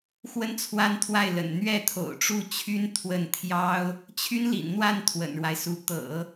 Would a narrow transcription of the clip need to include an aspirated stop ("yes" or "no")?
yes